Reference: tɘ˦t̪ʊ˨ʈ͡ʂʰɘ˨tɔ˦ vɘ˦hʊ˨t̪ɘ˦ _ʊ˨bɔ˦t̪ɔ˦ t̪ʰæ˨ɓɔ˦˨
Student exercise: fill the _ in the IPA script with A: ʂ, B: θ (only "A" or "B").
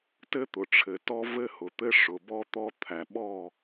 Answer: A